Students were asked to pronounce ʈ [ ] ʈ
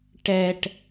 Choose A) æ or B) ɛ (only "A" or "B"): B